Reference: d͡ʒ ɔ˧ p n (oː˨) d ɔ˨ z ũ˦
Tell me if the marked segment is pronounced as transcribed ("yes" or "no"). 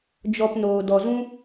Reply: yes